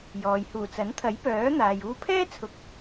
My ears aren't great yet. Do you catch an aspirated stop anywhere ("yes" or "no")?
yes